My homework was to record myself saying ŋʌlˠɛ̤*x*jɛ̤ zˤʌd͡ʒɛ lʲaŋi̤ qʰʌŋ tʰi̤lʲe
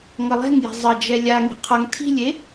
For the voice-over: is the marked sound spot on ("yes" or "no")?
no